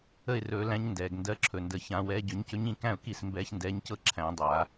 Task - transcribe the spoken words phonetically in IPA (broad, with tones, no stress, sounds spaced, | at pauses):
ə˥˩ ɪ̯ r ɵː˨˩˦ l æ̃˨˦ ɲ n d ɛː˩ ɡ n d ɜ˨˦ ǁʰ ɵ˩ n d ə˨˩˦ ç ã˨˩˦ w ɛː˨˦ ɟ ɵ˨˩˦ ɲ c ɵ˨˦ ɲ ĩ˥˩ k æ̃˥˩ ʊ̯ k i˥˩ s m b ɛː˨˦ ç n d ɛː˨˦ ɲ c ɤ˥˩ ǁʰ æ̃˨˩˦ dˤ a˨˩˦